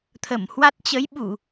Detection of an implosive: present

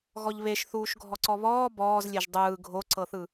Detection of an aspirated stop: absent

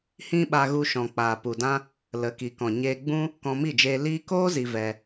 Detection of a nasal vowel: present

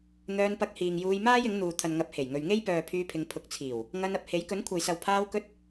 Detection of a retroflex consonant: absent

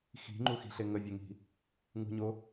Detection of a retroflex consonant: absent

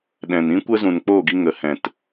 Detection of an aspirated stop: absent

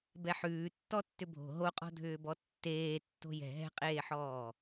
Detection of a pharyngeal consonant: present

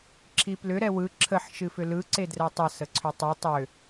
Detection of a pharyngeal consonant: present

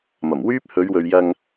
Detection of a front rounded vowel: present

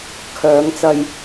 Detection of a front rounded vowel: present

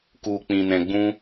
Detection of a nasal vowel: present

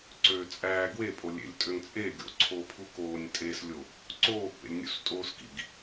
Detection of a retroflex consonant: absent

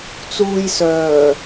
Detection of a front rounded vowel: present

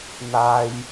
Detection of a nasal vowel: absent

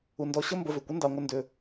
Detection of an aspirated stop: absent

